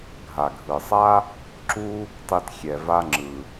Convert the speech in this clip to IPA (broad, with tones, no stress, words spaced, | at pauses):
ɡʱa˩ɡʱɯ˩sˤa˥ | ǁu˥ | tˤi˨t xʲɛ˨va˦ ŋ͡ǁɯ˩